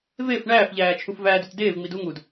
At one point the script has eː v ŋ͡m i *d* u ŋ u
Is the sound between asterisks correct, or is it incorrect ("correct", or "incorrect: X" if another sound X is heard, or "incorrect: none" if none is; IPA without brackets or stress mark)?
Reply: correct